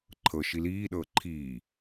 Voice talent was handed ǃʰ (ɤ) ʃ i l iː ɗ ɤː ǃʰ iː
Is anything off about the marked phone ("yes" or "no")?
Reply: no